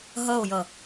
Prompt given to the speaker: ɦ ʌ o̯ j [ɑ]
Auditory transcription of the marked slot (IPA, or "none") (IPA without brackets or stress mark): ʌ